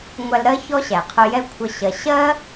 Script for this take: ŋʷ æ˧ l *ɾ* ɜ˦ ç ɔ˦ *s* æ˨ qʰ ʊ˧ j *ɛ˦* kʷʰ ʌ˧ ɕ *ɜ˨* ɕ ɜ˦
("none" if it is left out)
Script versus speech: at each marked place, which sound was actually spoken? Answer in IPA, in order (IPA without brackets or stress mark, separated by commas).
ɾ, ɕ, ɛ˦, ɜ˨